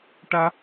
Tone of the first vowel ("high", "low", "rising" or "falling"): high